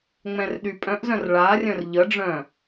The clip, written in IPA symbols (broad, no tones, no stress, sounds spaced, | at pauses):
ŋ͡m ɛ̃ r ɗ y pʼ œ̃ ʔ z œ̃ r ɭ a rʲ œ̃ r ʎ ə ɖ͡ʐ œ̃